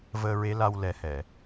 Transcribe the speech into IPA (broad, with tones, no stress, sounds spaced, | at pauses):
v əː˧ ɹ e˧˥ l a˧ w l ɛ˨˩˦ h ɛ˨˩˨